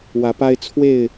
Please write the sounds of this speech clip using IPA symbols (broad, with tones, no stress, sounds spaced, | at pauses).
w ä˨˦ p a˦ ɪ̯ t͡sʰ w e˥˨ ɪ̯